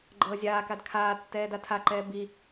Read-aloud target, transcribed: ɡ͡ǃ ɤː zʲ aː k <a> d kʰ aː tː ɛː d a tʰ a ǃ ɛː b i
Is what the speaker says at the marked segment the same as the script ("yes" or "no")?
yes